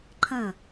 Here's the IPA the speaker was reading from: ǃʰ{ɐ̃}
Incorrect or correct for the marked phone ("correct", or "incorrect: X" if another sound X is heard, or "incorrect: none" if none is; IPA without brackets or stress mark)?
correct